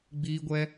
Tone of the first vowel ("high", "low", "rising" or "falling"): high